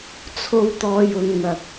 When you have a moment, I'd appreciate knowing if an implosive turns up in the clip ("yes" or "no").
no